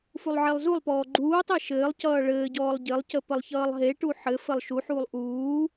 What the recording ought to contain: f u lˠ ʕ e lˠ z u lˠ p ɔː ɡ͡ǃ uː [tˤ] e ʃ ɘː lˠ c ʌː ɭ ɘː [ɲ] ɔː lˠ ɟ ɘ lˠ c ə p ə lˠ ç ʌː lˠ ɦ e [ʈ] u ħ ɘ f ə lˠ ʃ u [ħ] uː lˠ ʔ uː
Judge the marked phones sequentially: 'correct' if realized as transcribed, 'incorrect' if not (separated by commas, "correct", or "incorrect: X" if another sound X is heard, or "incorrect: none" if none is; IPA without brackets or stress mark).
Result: correct, incorrect: ɟ, correct, correct